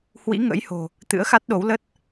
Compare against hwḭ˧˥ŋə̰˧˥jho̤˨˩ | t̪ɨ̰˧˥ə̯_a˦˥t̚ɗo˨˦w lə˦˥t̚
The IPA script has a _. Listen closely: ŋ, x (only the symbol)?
x